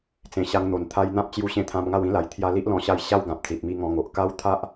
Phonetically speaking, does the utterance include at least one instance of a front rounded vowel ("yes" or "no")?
no